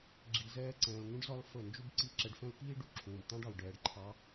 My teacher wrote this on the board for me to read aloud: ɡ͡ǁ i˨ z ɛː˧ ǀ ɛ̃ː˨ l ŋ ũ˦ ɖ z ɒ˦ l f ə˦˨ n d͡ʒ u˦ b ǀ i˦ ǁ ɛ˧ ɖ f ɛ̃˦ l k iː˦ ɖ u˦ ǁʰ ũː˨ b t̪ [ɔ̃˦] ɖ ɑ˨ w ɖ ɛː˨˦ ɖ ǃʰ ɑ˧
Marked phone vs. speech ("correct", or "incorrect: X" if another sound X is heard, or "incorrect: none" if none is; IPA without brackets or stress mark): incorrect: ɑ̃˦